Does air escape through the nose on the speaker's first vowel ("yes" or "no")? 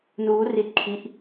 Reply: no